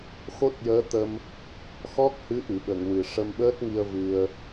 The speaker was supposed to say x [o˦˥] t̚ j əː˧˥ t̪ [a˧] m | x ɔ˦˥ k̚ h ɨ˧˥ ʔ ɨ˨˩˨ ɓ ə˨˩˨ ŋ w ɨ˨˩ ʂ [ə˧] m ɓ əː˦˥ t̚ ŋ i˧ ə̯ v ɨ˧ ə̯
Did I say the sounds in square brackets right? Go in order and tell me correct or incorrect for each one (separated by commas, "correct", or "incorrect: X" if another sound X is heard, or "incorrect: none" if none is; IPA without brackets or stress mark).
correct, incorrect: ə˧, correct